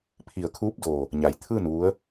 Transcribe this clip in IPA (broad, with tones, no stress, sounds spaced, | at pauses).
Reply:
pʰ i˧˩ ə̯ kʰ uː˧˥ p̚ d oː˧˩ | ɲ a˩˧ j t̪ʰ ɯː˥˨ n ʋ u˧˥ ə̯